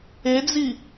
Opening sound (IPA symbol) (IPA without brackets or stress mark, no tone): e